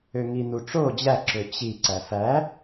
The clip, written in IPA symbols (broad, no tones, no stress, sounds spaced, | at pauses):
ø ŋ i n̪ u ʈ͡ʂ o d͡ʑ æ ǁ ø t͡ɕ i ǀ æ f æ